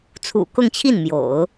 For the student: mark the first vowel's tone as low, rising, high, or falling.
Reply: low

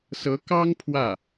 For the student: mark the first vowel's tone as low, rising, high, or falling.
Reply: rising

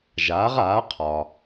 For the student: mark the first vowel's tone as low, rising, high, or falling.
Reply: rising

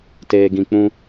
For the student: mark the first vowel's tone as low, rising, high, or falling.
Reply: low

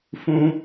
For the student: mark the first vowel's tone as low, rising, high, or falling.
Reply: high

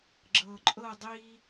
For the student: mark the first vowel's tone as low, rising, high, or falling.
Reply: low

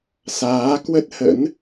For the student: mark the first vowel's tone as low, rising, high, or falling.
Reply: rising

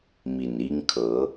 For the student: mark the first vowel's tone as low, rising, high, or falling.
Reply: low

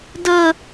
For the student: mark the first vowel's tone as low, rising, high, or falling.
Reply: high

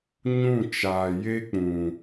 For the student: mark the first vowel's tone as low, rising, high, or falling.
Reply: falling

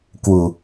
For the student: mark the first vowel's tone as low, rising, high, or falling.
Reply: low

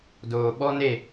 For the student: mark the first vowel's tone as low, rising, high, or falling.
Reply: low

